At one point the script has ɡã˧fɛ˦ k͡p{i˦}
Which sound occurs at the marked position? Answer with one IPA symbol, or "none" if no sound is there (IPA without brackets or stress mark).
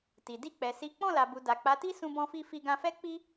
i˦